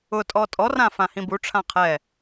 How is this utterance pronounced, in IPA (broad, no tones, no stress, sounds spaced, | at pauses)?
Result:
ʊ tʼ ɔ tʼ ɔ r ã f ã h ĩ b u ʈ͡ʂʰ ã qʰ ɛ